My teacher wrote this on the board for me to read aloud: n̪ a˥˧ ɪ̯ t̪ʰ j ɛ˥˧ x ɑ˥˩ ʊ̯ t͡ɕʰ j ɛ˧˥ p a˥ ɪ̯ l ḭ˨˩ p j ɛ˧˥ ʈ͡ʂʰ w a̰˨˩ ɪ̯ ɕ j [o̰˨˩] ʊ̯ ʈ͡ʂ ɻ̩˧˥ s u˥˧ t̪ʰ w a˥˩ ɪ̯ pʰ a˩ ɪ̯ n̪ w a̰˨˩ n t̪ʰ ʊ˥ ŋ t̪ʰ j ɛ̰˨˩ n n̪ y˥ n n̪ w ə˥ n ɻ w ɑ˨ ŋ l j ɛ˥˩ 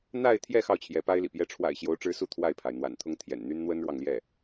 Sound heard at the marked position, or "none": o˧˥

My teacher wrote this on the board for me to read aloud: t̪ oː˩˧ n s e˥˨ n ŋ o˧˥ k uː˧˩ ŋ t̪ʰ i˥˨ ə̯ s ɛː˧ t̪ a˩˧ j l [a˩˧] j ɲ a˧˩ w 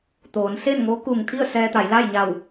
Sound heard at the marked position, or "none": a˥˨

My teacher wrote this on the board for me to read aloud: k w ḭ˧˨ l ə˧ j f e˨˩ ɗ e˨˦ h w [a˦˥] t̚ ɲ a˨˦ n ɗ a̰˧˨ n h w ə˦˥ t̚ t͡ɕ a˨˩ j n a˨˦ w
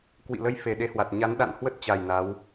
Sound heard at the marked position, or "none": a˨˩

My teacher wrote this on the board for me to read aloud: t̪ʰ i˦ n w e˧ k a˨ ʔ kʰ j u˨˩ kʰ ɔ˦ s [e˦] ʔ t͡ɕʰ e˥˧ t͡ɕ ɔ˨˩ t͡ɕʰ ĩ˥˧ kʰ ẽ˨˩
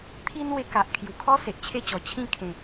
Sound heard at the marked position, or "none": e˨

